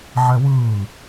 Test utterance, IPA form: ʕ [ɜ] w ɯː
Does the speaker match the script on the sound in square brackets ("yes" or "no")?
no